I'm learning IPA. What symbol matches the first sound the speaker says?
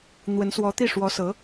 n̪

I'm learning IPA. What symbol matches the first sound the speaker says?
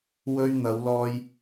w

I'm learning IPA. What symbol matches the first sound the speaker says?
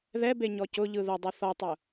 ð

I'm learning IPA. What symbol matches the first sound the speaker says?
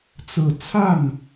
t͡s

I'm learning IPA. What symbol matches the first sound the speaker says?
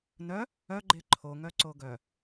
n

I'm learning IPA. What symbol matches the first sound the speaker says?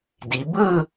d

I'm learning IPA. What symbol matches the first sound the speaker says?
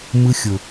m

